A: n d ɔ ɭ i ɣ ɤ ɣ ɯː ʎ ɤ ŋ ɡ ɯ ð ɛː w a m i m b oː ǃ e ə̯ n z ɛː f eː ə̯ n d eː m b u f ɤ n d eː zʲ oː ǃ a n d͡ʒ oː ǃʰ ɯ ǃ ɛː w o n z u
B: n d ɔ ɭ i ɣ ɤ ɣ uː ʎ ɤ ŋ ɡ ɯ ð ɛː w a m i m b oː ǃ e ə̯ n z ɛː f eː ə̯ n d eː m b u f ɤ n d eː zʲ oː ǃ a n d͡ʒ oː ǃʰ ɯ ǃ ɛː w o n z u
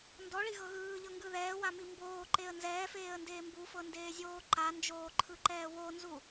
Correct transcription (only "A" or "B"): A